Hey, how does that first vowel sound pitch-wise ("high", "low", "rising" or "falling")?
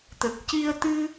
low